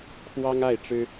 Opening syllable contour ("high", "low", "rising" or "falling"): high